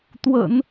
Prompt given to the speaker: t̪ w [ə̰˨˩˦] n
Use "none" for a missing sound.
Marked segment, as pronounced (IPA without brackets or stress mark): ə̰˨˩˦